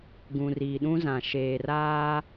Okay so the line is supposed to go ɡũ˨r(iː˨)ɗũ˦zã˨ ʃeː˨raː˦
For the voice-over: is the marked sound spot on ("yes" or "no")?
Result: yes